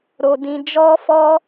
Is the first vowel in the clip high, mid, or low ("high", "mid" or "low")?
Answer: mid